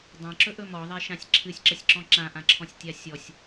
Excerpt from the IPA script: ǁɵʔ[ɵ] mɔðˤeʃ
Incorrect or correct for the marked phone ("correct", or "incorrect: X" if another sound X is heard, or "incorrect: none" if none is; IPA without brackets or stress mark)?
correct